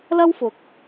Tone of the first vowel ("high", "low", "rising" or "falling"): high